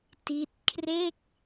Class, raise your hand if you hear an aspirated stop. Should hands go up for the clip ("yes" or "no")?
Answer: yes